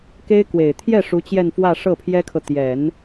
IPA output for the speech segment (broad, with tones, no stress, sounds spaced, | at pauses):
k e˥ ɪ̯ k w e˨˩ ɪ̯ t̪ʰ j ɛ˥˩ ʂ u˧˥ t͡ɕ j ɛ˥˧ n f w ä˥˧ ʂ ɤ˥˩ pʰ j ɛ˥ kʰ ɤ˨ t̪ j ɛ˨˩˦ n